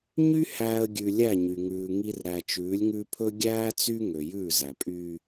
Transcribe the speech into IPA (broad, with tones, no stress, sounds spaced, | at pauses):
ɲ y˦ h æː˨ ə̯ ɡʲ ʉ˨ lʲ æ˦˨ ɲ y˨ ŋ ʉː˨ ŋ i˦ r ɾ æ˨ t͡ʃ ʉː˨˦ lʲ ŋ ʉ˦ pʰ ɵ˦ ɡʲ æː˦ t͡s y˦ ŋ ø˨ j ʉː˦˨ z æ˨ pʼ yː˦